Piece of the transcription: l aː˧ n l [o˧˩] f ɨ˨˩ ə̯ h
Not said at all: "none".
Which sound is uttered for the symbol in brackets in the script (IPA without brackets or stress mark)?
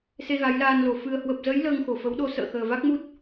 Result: o˨˩